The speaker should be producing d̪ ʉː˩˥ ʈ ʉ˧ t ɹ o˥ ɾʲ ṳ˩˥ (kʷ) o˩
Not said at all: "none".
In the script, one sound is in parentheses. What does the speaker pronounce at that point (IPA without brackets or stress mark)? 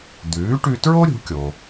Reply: kʲ